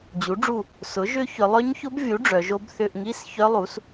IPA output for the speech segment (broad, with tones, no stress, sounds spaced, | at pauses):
d͡ʑ u˩˥ ɖ͡ʐ u˦˨ | s ʊ˩˥ ʒ ʏ˦˥ ç ʏ˩˧ lˠ œ˦˥ ɲ ç ʊ˦˥ b vʲ u˩˥ ɖ͡ʐ œ˩˧ ʒ o˦˥ b θ ʏ˧˥˧ ʔ ŋ i˧˥˧ s ç œ˦˥ lˠ u˩˥ s